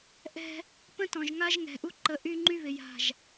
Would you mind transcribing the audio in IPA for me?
ʔɛ̤˦ | pə̃˦tɔ̃˨ʒŋa˦ʒ ŋɛ̤˨ ʔu˦ǃə˨˦ ʔy˦ŋ͡ǃy˦ βɪ˨ja̤˦˨ʒ

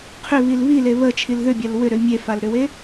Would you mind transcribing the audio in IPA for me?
qʰʏβil βile βət͡ʃʰil ðʏbʲal wʏɾʏ mʲefalɾʏwe

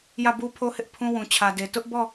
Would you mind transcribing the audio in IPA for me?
jä˦˨bu˦pʰo˦hɪ˦ʔ pʰũ˦wũ˨t͡ɕʰä˨de˨ tʊ˦ʔbɔ˦˨

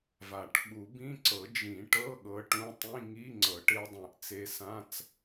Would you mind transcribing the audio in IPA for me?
va˨˩˦ʈ ɓu˨˩˦bĩ˧˥˧ǀɤ˨˩˦ d͡ʒĩ˨˩˦ʈɤ˧˥˧ ɠɤ˧˥ʈũ˧˥˧ tˤĩ˧˥˧ŋi˧˥˧ ŋ͡ǀɤ˨˩˦ʈe˧˥dˤɛ̃˨˩˦ʔ t͡se˧˥sã˧˥˧t͡s

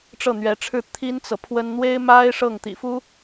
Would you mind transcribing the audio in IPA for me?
ʈ͡ʂɤ˥˩n̪ɥɛ˧˥ʈ͡ʂʰɻ̩˥˩ t̪ʰi˥nt͡sɤ˨pʰwə˥n n̪we˥ɪ̯ma˥ɪ̯ ʂɤ˥˩ŋt̪ḭ˨˩ fu˥

